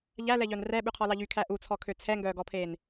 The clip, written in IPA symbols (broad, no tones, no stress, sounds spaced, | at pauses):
ʎ æ l ɛ ʎ œ n r ɛ ɓ ʉ qʰ ɔ l ɑ ʎ y kʰ æ ʔ u t͡sʰ ɔ kʰ ø t͡sʰ ɛ ŋ ɡ œː ɡ ɔ pʰ eː n